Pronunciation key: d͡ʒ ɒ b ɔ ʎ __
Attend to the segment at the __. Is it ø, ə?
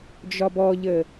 ə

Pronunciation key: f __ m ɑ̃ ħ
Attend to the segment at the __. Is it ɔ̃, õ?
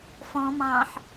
ɔ̃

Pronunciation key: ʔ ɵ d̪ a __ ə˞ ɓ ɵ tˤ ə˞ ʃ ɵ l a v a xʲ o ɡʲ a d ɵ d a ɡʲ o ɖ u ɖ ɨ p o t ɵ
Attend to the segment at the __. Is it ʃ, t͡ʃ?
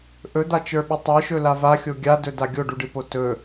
t͡ʃ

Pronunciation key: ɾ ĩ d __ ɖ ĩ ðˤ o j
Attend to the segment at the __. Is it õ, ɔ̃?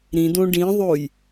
õ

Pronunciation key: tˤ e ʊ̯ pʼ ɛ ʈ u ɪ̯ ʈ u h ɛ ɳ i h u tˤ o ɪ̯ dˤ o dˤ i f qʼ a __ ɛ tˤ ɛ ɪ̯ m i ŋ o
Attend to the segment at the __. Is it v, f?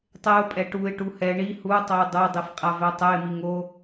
v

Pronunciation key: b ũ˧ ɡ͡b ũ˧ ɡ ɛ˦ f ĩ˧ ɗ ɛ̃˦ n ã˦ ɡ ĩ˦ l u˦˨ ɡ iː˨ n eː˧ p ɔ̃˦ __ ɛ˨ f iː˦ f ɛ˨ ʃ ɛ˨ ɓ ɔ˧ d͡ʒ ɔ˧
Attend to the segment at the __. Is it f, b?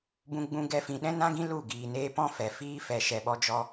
f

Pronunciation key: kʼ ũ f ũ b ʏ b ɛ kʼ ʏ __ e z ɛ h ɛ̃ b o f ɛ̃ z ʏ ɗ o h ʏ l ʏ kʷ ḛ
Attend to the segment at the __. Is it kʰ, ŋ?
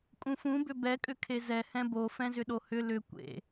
kʰ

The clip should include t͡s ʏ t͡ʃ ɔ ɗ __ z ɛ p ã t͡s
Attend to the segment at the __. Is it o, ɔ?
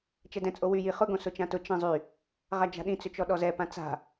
ɔ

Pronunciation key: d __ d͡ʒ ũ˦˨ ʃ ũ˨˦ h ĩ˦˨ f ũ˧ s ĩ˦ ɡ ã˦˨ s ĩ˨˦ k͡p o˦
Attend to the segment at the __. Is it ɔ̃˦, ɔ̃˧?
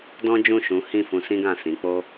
ɔ̃˦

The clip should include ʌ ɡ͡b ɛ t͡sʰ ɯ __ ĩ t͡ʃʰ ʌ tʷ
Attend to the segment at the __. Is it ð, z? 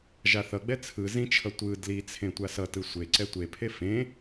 z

